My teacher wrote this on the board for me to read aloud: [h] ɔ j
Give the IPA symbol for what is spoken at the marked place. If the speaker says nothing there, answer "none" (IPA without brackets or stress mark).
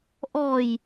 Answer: ʔ